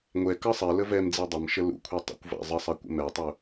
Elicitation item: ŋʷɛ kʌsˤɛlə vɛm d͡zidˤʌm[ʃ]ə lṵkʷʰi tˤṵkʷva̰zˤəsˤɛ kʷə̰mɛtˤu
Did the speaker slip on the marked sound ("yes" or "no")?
no